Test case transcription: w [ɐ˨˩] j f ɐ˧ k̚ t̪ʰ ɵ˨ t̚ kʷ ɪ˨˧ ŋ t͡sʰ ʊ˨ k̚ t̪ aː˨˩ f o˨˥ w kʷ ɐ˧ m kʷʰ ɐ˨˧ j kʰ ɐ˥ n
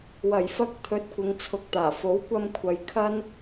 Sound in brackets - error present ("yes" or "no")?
no